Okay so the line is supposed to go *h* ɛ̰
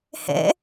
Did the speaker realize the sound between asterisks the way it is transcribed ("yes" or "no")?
yes